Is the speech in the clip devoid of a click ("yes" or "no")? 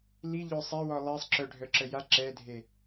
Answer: no